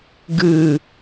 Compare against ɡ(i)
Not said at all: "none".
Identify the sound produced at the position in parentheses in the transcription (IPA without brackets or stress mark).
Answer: ɨ